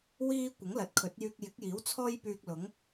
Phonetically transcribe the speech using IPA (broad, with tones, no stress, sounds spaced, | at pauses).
w iː˥ kʷ ɪ˨˥ ŋ l ɐ˨ t̚ kʰ ɵ˨˥ t̚ j yː˧ k̚ j ɪ˨˥ k̚ j iː˨˥ w t͡sʰ ɔː˥ j p yː˧ k̚ l ʊ˨˥ ŋ